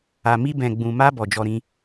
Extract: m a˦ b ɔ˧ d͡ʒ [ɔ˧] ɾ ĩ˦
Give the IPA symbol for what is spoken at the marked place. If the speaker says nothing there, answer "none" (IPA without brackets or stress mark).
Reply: ɔ˦